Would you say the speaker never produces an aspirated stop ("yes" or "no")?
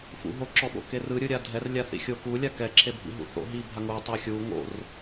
no